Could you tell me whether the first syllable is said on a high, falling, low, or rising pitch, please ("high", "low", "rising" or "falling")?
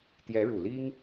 rising